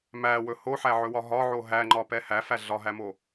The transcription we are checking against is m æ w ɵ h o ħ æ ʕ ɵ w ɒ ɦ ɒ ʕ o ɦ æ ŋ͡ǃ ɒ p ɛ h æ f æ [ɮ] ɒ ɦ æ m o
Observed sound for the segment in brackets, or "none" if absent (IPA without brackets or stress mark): ɮ